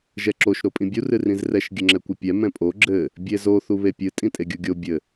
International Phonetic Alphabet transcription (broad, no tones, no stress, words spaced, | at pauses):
ʒɛǁoʃ ɾopʼĩbʲu rɨrĩzrɛʃ ɡʲɘŋ͡ǁɛkʷɨpʲɛ mɛ̃pʼo ɡ͡ǁɘ | bʲezo θuβepʲɨ tʼĩtʼeɡʲuɡʲo bʲɘ